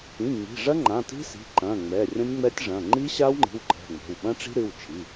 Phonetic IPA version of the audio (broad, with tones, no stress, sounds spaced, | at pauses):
ĩ˩˧˩ ŋ͡m i̤˩˧˩ ʐ ɐ˦˥ ŋ͡ǃ ã˩˧˩ t i̤˦˥ s i̤˩˧˩ ǃ ɐ̃˩˧˩ ŋ͡m ɛ˩˧˩ rʲ ɐ̃˦˥ nʲ ŋ͡m ɛ˦˥ tʲ ʐ ɐ̃˩˧˩ ŋ͡ǃ i˦˥ ɕ a˦˥ w ŋ͡ǃ i̤˩˧˩ w ǃ ɛ̤˩˧˩ ŋ͡m ɛ̤˩˧˩ w ɓ ɐ̃˦˥ ʈ͡ʂ i̤˦˥ ɾ ɨ˩˧˩ w t͡ʃʰ i˩˧˩